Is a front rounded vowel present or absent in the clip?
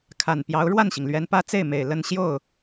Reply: absent